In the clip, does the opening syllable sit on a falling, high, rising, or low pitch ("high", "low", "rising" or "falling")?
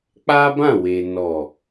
high